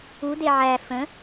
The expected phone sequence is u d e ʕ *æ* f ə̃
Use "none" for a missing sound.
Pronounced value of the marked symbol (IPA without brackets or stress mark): æ